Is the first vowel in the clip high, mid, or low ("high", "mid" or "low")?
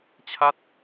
low